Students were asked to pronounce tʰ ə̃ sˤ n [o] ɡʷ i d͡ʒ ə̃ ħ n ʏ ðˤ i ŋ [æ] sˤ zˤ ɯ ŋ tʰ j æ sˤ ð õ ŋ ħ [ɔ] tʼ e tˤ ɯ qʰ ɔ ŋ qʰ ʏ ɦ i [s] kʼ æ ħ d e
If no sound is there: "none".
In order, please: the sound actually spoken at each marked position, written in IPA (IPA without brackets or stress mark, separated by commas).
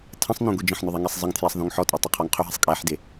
õ, ɛ, ɔ, sˤ